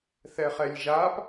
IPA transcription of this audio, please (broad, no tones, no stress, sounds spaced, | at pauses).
θ ɛ χ ɛ lʲ ʒ a p